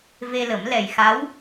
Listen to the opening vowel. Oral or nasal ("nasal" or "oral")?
oral